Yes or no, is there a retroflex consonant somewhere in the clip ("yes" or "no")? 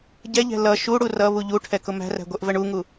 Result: yes